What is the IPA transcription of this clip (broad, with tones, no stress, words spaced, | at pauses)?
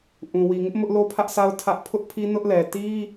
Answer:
ʔũ˨wi˨ŋɪ˦ʔ mʊ˦ʔ lo˦pʰä˦ʔsʰa˦ʊ̯ tʰä˦ʔ pʰʊ˦ʔpʰi˦ nʊ˦ʔlɛ˨ ti˦